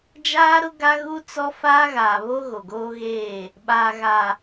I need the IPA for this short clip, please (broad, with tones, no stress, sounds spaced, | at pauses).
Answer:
d͡ʒ aː˦ ɾ ʊ˦ ɡ a˦ ɣ u˦ t͡s ɔ˦ f aː˦ ɣ aː˨ β o˦ ɣ o˨ ɡ oː˦ ɣ eː˦˨ | ɓ aː˨ ɣ a˨